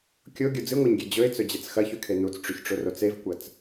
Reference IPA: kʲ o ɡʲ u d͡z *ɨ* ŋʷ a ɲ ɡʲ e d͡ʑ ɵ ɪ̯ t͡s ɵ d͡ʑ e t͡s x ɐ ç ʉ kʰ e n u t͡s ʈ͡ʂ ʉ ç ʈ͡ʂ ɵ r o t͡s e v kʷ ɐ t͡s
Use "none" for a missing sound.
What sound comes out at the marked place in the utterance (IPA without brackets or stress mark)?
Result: ɨ